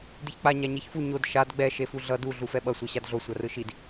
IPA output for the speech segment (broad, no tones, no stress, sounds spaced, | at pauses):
d i ç k͡p a ɲ a ɲ e ç f u ɲ o d ʃ a d ɡ͡b ɛ ʃ e f u ɮ ʌ d u ɮ u f ɛ ɓ ʌ sʷ ɛ ɕ a d ɮ o sʷ a r ɯ ʃ i d